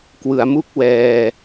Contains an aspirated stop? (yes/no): no